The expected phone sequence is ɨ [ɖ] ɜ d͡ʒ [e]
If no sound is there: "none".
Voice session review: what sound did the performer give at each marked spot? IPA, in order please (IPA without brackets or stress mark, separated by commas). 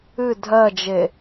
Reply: dʱ, e